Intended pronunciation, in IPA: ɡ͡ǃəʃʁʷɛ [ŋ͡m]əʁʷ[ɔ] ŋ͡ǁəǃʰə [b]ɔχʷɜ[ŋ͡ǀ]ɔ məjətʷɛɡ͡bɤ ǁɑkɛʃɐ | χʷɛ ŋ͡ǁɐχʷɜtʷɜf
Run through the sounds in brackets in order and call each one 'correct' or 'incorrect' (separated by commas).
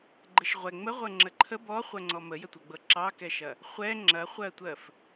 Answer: correct, incorrect, correct, correct